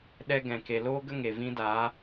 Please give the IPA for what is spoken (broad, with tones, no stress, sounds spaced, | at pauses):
ɗ ɛ˦ ɡ ɛ̃˨ k e˨ l oː˦ ɡ ə˦ ŋ e˨ v ĩ˦ d aː˨˦